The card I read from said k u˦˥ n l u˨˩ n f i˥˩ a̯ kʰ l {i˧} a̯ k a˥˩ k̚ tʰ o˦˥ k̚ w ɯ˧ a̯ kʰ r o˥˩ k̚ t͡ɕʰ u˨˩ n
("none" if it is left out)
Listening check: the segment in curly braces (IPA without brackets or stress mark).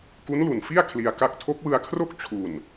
i˧